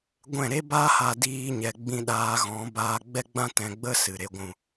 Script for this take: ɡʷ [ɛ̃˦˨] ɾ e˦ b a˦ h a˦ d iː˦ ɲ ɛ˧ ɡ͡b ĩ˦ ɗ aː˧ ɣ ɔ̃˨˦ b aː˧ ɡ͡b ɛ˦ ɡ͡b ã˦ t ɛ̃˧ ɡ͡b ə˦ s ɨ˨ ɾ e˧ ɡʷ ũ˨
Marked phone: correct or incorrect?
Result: correct